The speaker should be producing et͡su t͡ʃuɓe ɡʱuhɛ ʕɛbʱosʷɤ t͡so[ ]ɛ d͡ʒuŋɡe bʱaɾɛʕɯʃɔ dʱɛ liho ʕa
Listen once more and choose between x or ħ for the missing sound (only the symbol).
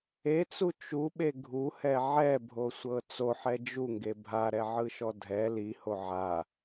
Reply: ħ